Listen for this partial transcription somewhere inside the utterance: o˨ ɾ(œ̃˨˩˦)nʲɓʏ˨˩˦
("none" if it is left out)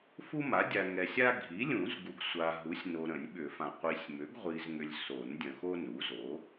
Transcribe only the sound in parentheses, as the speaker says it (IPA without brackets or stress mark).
ə̃˨˩˦